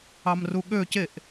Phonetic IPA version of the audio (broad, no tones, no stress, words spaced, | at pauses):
ɑmruɠø ceʔ